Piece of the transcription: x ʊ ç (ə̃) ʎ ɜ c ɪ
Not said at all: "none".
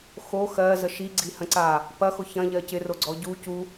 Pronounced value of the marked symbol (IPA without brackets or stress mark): ɐ̃